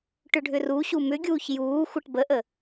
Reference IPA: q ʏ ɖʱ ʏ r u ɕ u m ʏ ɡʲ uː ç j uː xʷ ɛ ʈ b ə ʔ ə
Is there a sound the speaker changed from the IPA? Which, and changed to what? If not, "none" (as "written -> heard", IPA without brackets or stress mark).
q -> ʈ